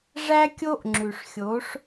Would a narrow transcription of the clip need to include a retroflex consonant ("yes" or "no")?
yes